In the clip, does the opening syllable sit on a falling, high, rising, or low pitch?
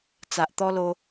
low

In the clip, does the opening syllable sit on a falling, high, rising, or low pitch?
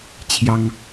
high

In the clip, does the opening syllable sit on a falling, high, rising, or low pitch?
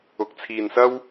rising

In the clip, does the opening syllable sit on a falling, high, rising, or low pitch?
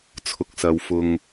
low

